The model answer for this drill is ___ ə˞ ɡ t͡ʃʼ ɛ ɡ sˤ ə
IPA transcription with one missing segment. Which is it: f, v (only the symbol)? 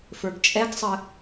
f